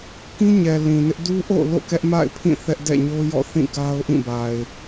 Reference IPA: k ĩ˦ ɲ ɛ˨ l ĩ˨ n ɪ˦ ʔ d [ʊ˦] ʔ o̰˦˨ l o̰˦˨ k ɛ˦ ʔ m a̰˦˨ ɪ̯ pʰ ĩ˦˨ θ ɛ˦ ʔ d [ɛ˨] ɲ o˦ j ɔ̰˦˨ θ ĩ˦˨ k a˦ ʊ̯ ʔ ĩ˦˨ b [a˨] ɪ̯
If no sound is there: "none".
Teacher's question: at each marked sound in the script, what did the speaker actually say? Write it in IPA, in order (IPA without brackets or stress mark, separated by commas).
u˦, ɛ̰˦˨, a˨